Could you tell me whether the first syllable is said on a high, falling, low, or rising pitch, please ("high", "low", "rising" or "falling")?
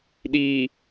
low